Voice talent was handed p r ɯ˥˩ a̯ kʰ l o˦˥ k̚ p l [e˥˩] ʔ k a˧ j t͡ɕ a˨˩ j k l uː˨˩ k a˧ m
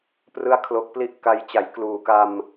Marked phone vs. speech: incorrect: i˥˩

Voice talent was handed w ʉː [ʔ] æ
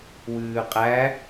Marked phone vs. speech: incorrect: qʼ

